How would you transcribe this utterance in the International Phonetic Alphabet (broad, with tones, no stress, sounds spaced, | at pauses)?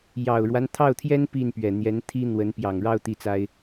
j ɑ˨˩ ʊ̯ ɻ w a˦ n t̪ʰ ɑ˥˩ ʊ̯ t̪ʰ j ɛ˥ n p i˥˩ n p ɥ ɛ˨˩ n̪ j ɛ˧˥ n t̪ʰ i˥ n̪ w ə˧˥ n p j ɑ˨˩ ŋ ɻ ɑ˥˧ ʊ̯ t̪ i˥˩ t͡s a˥ ɪ̯